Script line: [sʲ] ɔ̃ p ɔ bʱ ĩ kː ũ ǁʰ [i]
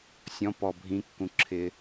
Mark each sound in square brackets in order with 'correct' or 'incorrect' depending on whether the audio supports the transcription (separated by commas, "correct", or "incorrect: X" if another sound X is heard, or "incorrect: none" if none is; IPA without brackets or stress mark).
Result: correct, incorrect: ɪ